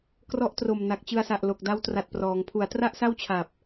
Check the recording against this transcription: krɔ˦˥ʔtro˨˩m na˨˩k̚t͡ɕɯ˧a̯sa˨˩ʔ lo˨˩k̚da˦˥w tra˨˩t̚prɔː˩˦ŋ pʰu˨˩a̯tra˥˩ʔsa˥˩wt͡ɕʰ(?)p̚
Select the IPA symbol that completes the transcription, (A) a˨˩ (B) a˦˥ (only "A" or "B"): A